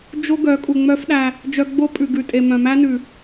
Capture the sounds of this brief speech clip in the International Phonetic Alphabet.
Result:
d͡ʒ o˦ ɡ œ˨˦ kʼ u˨ ŋ͡m œ˦ f ɗ æ˧ | d͡ʒ œ˧ ɡ͡b o˦ pʼ ʉ˨ ɡ ʉ˨ tʼ e˨ m œ̃˨ m æ˦ n ʉ˨

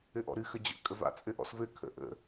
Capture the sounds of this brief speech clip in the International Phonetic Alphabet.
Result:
ɘ ʔ ɔ̰ ɾ ɨ x ə d͡ʑ ə̰ kʼ ə v a̰ t͡sʼ ɘ ʔ ɔ̰ s v ɘ kʰ ə̰ ʔ ə̰

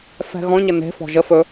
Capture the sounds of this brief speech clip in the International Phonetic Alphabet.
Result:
f ɛ̤ ɣ ɔ̃ ɲ ə n e̤ f ɔ̤ ʒ ə f ɵ

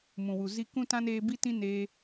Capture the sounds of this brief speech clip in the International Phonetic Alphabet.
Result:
m ũ˨ w u˨ z i˦ k ũ˦ t ã˦ n eː˧ b i˦ t ĩ˦ n eː˧

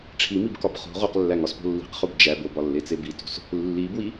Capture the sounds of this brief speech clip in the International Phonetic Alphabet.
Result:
ʈ͡ʂʰ i m i b k ɒ b χ o̤ ʁ o q lː æ ŋ ɒ s p o̤ lː i̤ q χ u b d͡ʒ æ b o b ɒ lː e t͡s e b i t o̤ s | lː i b w i

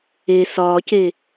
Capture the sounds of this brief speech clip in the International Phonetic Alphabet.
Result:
e s ɒː c e

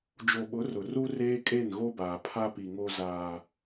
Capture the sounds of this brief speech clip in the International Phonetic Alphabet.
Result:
d͡ʒ o˨ ɓ ʊ˨˦ r ʊ˨ r u˦ r eː˦ kʼ e˦˨ n ɣ o˦ b aː˨ pʰ a˦ p i˨ ŋ o˦ z aː˦

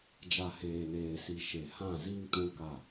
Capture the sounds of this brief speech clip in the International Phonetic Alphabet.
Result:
d͡ʒ a˨ h eː˨ n eː˨ s i˨ ʃ e˨ h ã˦˨ z i˦ ŋ t ũ˦ k a˦˨

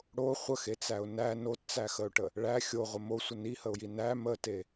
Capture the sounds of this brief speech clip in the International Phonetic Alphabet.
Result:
ɽ o χʷ ə x e t͡s æ ʊ̯ n æ n o t t͡s æ x ə ʊ̯ ʈ ə | ɭ æ xʲ o ʁʷ ə m o sʷ ə n i h ə ʊ̯ j i n æ m ə t e

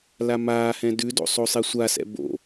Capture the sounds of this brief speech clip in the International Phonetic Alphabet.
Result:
l a m aː h ɛ̃ d ʉ d o̰ sˤ o sˤ i sʷ a s ɛ̰ b o̰

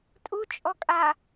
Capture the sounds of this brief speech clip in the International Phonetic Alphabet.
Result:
tʼ u t͡ʃʼ ɔ kʼ a

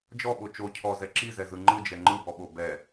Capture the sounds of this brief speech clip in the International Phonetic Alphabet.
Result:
d͡ʒ ɔ ɓ o t͡ʃ o cʰ ɔ z ɛ ǁ i z ɛ z ɯ ŋ͡ǃ ɯ d͡ʒ ɛ ŋ͡ǃ ɯ b ɔ ɓ o b ɛ

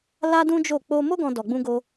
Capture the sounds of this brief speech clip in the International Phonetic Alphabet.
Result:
l a˦ d ũ˦ d͡ʒ o˦˨ k͡p o˧ m o˦ ɡ ɔ̃˧ d ɔ˧ ɡ͡b ũ˦ ɡ o˦

